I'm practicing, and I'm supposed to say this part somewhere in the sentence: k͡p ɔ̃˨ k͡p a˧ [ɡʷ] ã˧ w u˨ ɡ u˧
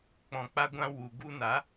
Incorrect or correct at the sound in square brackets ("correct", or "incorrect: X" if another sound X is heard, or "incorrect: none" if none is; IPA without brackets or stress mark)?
correct